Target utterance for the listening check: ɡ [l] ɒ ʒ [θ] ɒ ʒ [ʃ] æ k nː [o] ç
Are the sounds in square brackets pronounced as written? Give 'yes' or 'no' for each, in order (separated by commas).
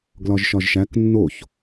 yes, no, yes, yes